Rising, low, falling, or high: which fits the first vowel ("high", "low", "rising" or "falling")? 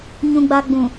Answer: low